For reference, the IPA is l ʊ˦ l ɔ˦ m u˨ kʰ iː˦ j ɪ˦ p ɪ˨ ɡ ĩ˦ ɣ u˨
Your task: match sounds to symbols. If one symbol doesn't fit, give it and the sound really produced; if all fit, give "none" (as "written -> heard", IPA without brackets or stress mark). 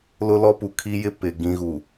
m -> p